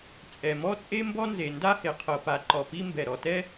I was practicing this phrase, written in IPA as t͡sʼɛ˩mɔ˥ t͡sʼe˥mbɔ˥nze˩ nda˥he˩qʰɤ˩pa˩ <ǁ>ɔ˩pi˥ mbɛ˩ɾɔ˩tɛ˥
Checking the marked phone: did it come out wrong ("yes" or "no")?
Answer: yes